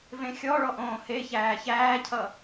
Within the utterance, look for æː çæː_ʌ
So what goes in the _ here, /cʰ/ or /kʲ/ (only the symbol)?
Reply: cʰ